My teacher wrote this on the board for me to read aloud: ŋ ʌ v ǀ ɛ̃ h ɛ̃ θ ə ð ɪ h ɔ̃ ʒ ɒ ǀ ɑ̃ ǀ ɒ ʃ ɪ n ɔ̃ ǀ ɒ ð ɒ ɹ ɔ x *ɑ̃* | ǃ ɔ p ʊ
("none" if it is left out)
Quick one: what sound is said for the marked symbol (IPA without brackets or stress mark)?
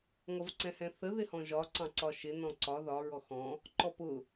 ɔ̃